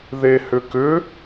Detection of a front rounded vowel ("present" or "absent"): present